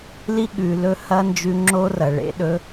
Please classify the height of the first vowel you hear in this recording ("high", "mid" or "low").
high